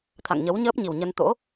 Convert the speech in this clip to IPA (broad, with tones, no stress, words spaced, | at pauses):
t̪ʰa̰˧˨ŋɲə˨˦w ɲəː˦˥p̚ɲi˨˩wɲə˧n t̪o̰˧˥